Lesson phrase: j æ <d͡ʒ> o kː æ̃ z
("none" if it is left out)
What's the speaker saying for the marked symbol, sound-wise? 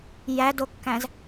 d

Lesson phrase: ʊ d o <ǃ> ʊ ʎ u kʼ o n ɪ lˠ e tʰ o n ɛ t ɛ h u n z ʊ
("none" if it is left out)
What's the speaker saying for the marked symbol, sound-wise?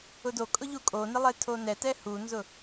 kʼ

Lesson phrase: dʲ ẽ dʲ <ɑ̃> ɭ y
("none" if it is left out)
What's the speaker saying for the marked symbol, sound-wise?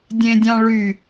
ɑ̃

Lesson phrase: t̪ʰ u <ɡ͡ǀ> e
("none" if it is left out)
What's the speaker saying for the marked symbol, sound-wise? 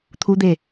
d̪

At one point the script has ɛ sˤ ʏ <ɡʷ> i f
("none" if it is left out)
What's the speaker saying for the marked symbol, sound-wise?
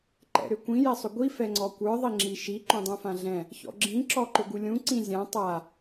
ɡʷ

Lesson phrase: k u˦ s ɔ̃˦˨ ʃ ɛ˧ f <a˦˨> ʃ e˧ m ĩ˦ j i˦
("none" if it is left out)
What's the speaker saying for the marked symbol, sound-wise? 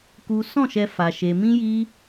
a˧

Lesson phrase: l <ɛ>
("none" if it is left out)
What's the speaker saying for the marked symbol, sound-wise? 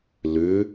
ʏ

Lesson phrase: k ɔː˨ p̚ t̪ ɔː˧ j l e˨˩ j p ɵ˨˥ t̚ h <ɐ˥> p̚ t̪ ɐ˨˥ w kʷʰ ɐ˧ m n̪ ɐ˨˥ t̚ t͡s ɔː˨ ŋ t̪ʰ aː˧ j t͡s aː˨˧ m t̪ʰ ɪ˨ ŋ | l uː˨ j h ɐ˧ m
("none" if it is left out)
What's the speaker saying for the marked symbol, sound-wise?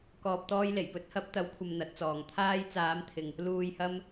ɐ˨˥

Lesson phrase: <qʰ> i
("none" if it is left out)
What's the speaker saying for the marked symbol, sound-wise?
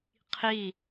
qʰ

